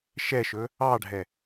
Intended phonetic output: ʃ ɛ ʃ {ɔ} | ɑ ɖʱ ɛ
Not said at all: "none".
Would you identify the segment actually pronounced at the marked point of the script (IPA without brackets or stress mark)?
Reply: ɵ